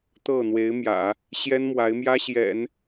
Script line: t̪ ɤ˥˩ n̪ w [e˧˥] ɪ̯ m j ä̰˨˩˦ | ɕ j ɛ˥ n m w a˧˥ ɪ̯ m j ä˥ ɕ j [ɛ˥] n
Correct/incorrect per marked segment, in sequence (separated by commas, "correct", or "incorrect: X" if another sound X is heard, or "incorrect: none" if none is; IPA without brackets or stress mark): correct, incorrect: ɛ̰˨˩˦